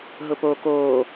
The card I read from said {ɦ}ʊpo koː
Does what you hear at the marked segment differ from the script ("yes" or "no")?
no